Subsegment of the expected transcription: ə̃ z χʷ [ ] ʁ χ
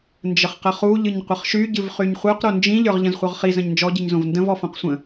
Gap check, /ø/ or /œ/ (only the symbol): œ